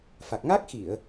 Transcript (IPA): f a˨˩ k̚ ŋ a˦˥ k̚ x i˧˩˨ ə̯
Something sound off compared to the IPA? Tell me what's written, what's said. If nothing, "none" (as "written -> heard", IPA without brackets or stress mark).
none